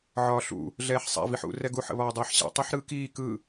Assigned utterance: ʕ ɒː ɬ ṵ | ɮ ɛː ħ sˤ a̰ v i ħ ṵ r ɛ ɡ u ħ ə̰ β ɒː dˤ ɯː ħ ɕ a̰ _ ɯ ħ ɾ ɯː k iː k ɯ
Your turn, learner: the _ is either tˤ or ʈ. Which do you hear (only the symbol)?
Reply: tˤ